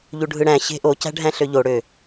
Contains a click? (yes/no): no